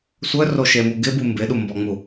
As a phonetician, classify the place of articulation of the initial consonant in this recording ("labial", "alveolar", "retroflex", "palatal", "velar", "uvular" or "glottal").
alveolar